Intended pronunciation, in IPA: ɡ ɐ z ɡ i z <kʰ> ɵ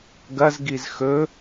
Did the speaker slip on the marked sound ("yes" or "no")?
yes